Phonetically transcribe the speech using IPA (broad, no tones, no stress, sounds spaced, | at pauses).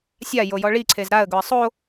sʲ a j o j ɔ ɭ i ǀʰ e z ɾ a ə̯ ɡ ʊ ə̯ sˤ o